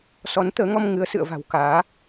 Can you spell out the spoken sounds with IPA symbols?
s ɔ˨˦ n t̪ əː˨˦ ŋ ɔ˧ m ŋ ɨ˨˦ ə̯ s ɨ̰˧˨ ə̯ v a̤˨˩ w k aː˨˦

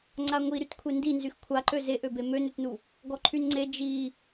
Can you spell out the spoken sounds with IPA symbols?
ŋ͡ǀ a ŋʷ i ɾ y t kʷʰ e n d i n z y x kʷʰ a ǃ ø z e ʔ ø b e m ø n ø t n u | ɡ ɔ ǃʰ y n ŋ͡ǀ e d͡ʒ i

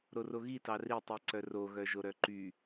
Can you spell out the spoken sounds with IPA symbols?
ɾ o r o ɣ i t ɑ r i tˤ i ǀ œ r o ɣ œ ʒ o ɾ œ ǃ y

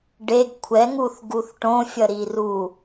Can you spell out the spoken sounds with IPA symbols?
ɖ e ɡ kʷʰ ɛ ŋ u θ ɡ u θ ʈ õ fʲ ʌ ɾ i r u

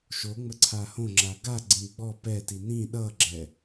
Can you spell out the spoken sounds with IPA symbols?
ʃ o ŋ͡m ə ǀʰ a h õ ŋ͡ǁ a ɡ a ɡ͡ǀ ĩ ɡ͡b ɔ p ɛ t i n ĩ ɗ ʌ ɡ͡ǁ ɛ

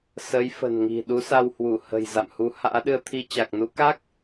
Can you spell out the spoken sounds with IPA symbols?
s ə˨˦ j f ə̤˨˩ n ŋ i̤˨˩ ɗ u˨˦ s a˧ w h w u˧˩ h ə̤˨˩ j z a̰˧˨ m h u˨˦ h a̰ː˧˥ ɗ ɨ˧ ə̯ t̪ʰ i˧ t͡ɕ a˨˩ k̚ n u˨˦ k a˦˥ k̚

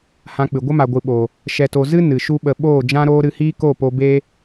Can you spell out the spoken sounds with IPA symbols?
h ã˧ k͡p ɨ˨ ɡʷ ə˦ m a˨ ɡʷ ɨ˨ ɓ oː˨ | ʃ ɛ˨ t o˨ z ɨ˦ n ɨ˨ ʃ u˦ ɓ ə˧ ɓ oː˦˨ d͡ʒ ã˦ ɾ oː˦ ɾ ɨ˧ h iː˦ k o˦˨ p o˧ b eː˦

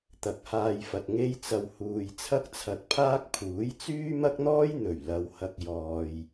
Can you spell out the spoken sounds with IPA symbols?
t̪ ɐ˨ k̚ h aː˧ j f ɐ˨ t̚ ŋ e˧ j t͡s ɐ˨ w h uː˨ j t͡sʰ ɐ˥ k̚ t͡sʰ ɐ˧ t̚ pʰ aː˥ k̚ pʰ uː˨˥ j t͡s yː˥ m ɐ˥ k̚ n̪ ɔː˥ j n̪ ɵ˨˩ ɥ l ɐ˨˧ w h ɐ˧ k̚ j ɔː˨ j

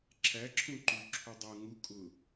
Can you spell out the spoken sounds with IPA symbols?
ǁʰ æ ǁʰ ũ ǃ ʉ ǁʰ u dˤ ɤ ŋ u kʼ ʊ

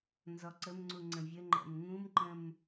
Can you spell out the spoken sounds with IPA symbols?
n z ɔ ǀ ə m ŋ͡ǀ u ŋ͡ǀ ə̃ vʲ ə ŋ͡ǃ ɛ̰ m ŋ ũ m ǃ ə̃ m

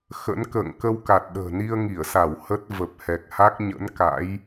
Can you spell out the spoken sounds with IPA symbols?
x ə̰˧˥ n k ə̰ː˧˨ ŋ k ə˧ w k a˨˩ t̚ ɗ ə̤ː˨˩ n i˧ ə̯ ŋ i˧˩ ə̯ s a˧˩ w h ə˦˥ t̚ v ə˨˩ p̚ h ɛ˨˩ k̚ h a˦˥ k̚ ɲ ə̰˧˥ n k a̰˧˥ j

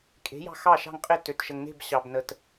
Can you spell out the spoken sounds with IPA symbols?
kʼ e̤˩˥ j ɑ̤˧ x ɑ˥˩ ʃ ɑ̤˥˩ ŋ qʼ ɪ˥˩ t ø˩ t ʃ ə˩ ŋ n e̤˥˩ b ɕ ɑ˩ b n ə˩ t

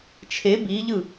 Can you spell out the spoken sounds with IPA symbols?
t͡ʃʰ e b i ʎ ɯ

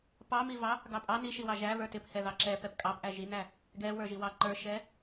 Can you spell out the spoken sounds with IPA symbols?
p ɑ m i v ɑ | ɡ ɑ pʼ ɑ n i ʃ i w ɑ ʒ æ β ə˞ t ɪ p h ɛ ð ɑ ǁ ɛ p ɛ p kʼ ɑ p ʔ æ ʒ i n æ | ɡ ɛ w ə˞ ʒ i w ɑ ǃ ə˞ ʃ ɛ

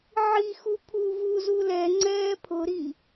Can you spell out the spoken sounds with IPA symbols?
ʕ i x u pʰ uː v u z u l ɛ ŋ͡ǀ ɛː pʰ ʊ ɾ i

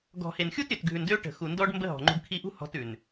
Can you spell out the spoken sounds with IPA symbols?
ɡ ɔ̤˨ h e˨ n xʲ u˦ t ɾʲ ø˨ t ɡʱ ʉ˨ n d ø˦ ʈ ə̤˨ x u˨ n d ɔ˦ ɖ m b ə˦ ɦ ɔ̤˨ ŋ͡ǃ ṳ˧ ɖ kʰ i˦ ʔ ṳ˦ h ɔ̤˧ t ʉ˨ n

